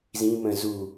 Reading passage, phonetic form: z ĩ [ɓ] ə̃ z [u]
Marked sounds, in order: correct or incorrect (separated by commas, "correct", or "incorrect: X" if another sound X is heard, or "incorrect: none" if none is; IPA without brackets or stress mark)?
incorrect: m, correct